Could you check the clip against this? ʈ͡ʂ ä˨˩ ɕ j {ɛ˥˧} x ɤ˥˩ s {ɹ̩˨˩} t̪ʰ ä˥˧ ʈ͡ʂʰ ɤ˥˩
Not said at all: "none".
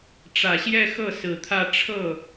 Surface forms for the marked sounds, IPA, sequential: ɛ˥˧, ɹ̩˨˩

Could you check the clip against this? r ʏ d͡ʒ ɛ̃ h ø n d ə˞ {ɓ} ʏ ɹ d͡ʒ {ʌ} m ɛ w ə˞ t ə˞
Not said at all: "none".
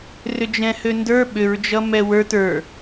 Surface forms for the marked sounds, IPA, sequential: ɓ, ʌ

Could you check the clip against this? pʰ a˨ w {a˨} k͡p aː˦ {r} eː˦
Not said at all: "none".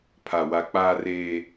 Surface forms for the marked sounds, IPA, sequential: a˨, r

